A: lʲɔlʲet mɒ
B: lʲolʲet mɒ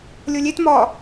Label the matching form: B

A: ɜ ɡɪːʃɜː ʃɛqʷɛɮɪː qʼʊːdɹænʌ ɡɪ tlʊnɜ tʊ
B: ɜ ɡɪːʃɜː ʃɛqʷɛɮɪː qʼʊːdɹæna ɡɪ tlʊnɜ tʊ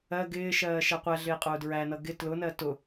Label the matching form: A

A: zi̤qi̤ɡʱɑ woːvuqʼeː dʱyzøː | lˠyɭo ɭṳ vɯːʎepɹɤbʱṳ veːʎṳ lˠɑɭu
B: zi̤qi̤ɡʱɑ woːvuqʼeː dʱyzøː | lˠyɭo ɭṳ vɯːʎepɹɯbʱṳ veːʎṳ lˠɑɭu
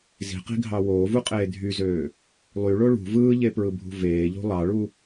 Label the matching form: B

